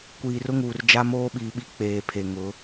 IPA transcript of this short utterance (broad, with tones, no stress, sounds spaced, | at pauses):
kʷ iː˨ r ʊ˦ ŋ uː˨ r d͡ʒ a˦ m oː˦ ɓ iː˨ ɓ i˦ k͡p eː˨ pʰ e˨ ŋ ʊ˨˦